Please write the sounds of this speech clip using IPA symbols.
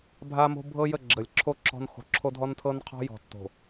bʱa˦mo̤˦bʱɤ˦jə˦˨ ɡ͡ǁə˨lʲǁʰo˦ ǁɔ̤˦n xo̤˨ ǁʰo˦dʱɔ˦ntʰɤ˦nqʰɔ̤˦ jɔ̤˨tːo̤˨

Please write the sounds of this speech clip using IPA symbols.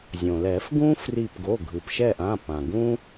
zʲõ˩lɛ˨˩˦fɡũ˥ fri˦˨p ɡo˩˧˩ɡʱɯ˩pʃɛ˦˨ʔã˩˧˩ pã˩ɡũ˥

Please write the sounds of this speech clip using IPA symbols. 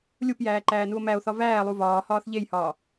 lʲupjæːǃæːnuo̯ mæo̯θɒ væːlˠu vɒːhɒːθ ʎejhɒː

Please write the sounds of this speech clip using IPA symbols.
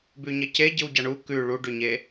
bʉɲɐce ɟɨwɟaɳu kʉ ɭuɖʉɲe

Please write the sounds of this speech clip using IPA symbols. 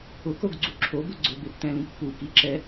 ʊkoɡɡ͡ǀu ǁʰobʊ ɡ͡ǀʊbeptɛ̃lĩk pukiǁɛ

